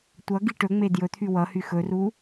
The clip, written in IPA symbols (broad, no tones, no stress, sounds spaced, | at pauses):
tʷ ʌ ɡ i ʈ ɵ ŋ͡m e d j ɵ t̪ʰ y w ʌ h y x ɵ r u